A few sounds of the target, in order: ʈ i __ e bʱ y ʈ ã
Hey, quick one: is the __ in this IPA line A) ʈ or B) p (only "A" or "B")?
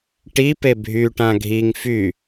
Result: B